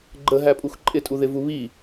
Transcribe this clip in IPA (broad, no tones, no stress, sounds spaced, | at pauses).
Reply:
ɡ͡ǃ ə ɦ æ pʼ u x ǃʼ ɪ tʼ u ð ɪ v u β i